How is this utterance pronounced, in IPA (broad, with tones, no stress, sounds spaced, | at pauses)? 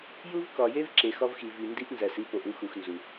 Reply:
j u˦ v k ɒ˨ j e˦ v ǁ e˨ x ɒ˦ v x i˨ v i˨ n d i˦ ʔ n z æ˨ s i˦ p o˨ ʔ u˦ x u˨ x n z u˨